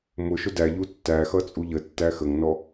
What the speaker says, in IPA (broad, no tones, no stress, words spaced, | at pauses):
mʊ ʃʊdæʎu tːæxʌ t͡sʼuʎətːæ xəŋnɔ